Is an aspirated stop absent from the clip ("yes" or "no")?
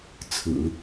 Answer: no